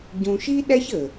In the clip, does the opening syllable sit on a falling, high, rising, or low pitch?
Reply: low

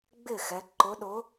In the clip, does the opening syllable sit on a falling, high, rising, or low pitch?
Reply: falling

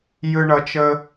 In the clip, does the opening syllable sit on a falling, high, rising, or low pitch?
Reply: high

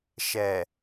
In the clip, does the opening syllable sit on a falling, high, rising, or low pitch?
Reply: low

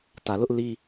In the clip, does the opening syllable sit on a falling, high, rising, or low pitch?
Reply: low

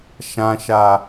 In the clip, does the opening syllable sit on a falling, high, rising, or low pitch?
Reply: low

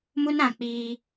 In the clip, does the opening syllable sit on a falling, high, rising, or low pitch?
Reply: high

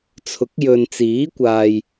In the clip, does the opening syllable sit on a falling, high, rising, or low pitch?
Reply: rising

